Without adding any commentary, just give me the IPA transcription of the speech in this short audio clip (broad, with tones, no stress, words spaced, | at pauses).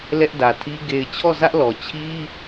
lɛ˦ʔdä˨tʰi˦ ɡe˦˨ɪ̯ t͡ɕʰɔ˦˨zä˦ʔlɔ˨ t͡ɕʰi˦